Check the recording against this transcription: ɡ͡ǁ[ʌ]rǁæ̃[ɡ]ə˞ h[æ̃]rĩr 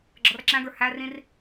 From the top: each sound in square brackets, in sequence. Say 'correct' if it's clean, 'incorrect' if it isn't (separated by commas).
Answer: correct, correct, incorrect